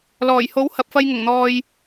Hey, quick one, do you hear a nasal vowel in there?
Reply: no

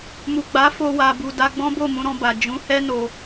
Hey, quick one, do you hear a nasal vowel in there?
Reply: yes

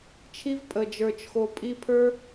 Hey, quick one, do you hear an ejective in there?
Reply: yes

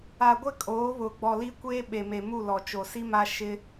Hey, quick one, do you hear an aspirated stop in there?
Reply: no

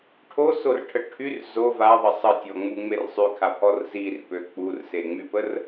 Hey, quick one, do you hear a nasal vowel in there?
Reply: no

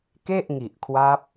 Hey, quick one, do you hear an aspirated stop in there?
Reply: yes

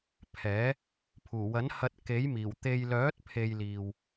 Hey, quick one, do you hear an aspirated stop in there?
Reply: yes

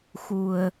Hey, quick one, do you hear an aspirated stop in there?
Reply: no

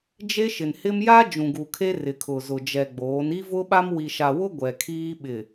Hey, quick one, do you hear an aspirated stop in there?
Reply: yes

